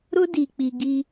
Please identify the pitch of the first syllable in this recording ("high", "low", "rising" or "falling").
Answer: high